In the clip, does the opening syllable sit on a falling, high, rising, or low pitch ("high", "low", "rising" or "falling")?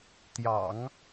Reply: low